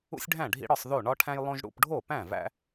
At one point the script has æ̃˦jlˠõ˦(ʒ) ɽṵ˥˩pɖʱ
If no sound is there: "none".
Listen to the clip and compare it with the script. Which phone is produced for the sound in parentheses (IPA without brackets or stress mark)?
ʒ